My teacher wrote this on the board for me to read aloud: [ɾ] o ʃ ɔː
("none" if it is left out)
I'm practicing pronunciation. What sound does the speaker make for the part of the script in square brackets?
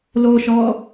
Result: l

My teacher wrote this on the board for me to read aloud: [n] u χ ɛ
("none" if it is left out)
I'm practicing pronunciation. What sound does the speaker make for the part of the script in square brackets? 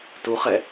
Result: t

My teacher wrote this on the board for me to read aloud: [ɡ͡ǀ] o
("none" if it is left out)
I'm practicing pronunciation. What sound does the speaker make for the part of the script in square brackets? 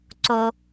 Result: ǀ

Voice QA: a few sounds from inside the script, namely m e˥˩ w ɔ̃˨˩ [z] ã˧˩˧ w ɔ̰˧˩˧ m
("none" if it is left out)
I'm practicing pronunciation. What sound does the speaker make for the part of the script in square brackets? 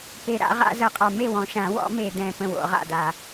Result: ʃ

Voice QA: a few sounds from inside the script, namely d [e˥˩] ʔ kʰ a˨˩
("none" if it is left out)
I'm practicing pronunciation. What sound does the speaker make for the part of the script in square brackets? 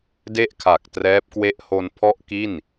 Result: e˥˩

